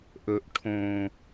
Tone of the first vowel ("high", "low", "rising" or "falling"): low